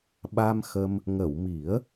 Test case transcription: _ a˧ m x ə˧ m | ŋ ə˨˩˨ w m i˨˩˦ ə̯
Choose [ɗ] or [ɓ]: ɓ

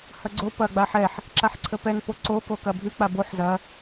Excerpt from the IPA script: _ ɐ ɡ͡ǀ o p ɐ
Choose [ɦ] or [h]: h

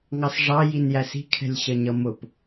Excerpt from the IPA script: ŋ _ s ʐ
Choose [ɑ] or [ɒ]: ɑ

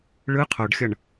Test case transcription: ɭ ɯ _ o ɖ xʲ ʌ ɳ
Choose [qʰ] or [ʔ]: qʰ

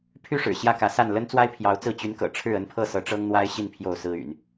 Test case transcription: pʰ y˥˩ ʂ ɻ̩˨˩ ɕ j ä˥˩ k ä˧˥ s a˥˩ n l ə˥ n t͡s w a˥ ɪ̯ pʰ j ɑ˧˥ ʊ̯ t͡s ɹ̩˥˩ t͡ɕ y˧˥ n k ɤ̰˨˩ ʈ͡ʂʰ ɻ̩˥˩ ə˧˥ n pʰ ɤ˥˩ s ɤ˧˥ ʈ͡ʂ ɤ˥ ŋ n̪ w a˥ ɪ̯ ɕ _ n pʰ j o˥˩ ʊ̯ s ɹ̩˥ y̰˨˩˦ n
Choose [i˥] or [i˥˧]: i˥˧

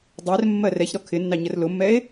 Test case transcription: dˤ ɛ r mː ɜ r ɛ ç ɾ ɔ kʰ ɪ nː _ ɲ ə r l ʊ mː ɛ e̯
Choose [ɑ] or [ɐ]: ɑ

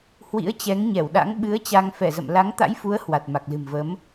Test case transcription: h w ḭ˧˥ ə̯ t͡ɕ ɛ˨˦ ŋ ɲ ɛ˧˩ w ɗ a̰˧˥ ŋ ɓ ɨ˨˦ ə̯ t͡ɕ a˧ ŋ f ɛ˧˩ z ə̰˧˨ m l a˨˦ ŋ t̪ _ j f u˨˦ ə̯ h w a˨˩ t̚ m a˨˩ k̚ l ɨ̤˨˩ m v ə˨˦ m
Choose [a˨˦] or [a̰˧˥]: a̰˧˥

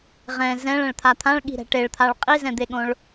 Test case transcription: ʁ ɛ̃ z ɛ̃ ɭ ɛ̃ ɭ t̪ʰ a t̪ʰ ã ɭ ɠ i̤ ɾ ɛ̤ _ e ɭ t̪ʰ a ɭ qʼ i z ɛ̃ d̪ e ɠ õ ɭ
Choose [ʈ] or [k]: ʈ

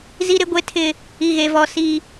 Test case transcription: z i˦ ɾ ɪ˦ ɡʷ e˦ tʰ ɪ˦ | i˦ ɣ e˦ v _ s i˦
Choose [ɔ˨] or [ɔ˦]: ɔ˦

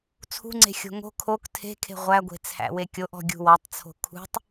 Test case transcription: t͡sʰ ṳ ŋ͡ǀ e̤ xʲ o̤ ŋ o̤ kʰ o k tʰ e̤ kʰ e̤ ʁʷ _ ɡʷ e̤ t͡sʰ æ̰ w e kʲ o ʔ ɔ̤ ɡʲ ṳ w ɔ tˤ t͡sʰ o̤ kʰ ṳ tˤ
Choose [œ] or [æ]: æ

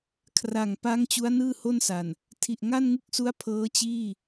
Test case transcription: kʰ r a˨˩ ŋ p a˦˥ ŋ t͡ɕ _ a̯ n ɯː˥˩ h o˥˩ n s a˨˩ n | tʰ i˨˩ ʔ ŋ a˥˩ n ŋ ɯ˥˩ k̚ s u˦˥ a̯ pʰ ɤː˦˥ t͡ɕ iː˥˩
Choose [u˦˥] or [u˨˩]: u˦˥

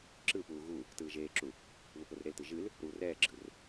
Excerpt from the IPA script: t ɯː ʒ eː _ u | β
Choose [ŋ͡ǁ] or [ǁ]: ǁ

